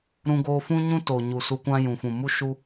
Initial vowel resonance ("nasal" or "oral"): nasal